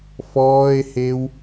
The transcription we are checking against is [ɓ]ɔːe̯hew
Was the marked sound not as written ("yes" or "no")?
yes